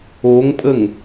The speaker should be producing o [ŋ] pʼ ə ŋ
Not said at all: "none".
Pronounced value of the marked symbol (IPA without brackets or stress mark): ŋ